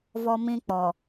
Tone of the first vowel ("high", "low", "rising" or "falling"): high